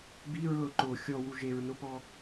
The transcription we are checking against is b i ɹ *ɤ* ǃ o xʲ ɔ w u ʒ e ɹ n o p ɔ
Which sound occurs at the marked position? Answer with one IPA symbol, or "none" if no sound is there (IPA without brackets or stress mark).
ɤ